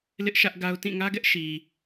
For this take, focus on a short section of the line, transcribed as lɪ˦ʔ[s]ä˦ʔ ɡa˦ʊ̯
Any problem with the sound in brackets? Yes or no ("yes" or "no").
yes